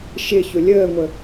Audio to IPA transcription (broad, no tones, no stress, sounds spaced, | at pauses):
ʃ ɪ ç ʊ lʲ əː ŋʷ ə